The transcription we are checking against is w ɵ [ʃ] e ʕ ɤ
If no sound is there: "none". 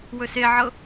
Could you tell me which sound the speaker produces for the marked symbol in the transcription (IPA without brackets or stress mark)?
s